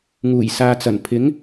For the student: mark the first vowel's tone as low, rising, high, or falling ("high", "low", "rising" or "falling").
low